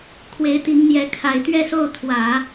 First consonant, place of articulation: velar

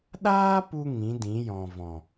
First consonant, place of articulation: alveolar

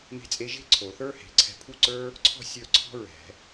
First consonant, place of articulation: labial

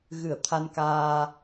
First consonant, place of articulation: velar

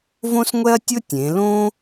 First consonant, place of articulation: labial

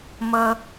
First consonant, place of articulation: labial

